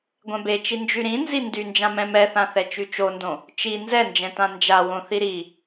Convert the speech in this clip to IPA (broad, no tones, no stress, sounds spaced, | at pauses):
ɡʷ ɛ̃ b e t͡ʃ i n d͡ʒ y ɾ ĩ n z i n d y n d͡ʒ ã m ɛ̃ m ɛ θ ã θ ɛ t͡ʃ y t͡ʃ o n d õ | t͡ʃ i n z ɛ n d͡ʒ ɛ̃ t ã n d͡ʒ a w õ θ i ɾ i